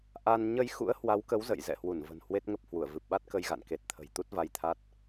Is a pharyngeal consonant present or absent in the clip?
absent